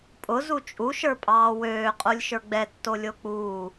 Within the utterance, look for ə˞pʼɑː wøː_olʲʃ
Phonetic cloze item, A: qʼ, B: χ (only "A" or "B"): A